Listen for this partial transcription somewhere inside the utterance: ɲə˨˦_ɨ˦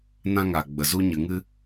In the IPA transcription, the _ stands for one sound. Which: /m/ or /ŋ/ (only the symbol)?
ŋ